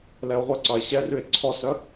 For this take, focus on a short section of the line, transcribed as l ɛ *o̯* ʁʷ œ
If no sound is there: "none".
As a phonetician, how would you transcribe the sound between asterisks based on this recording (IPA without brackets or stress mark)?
o̯